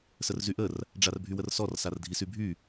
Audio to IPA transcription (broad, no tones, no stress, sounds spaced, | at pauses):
s ə r z y ʔ ə r | ɖ͡ʐ a r bʱ y w ə r s ɔ r s a r dʱ i s y bʱ y